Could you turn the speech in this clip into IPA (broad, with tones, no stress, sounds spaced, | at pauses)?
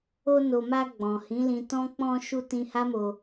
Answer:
o˧ n o˨ m a˧ ɡ͡b ɔ̃˨ h ĩ˨˦ l ĩ˧ t ɔ̃˦ k͡p ɔ̃˧ ʃ u˧ t ĩ˧ h a˦ m o˧